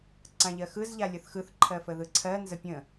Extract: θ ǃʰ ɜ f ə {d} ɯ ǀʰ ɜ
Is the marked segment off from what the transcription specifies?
yes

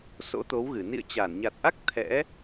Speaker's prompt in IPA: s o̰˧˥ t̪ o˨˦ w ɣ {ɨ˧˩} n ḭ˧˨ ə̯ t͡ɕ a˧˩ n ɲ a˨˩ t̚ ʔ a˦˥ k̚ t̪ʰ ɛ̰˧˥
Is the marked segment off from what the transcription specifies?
no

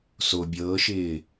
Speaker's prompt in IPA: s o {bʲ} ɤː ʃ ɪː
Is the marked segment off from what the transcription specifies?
no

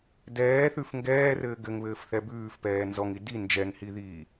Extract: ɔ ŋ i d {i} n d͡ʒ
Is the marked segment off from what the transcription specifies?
no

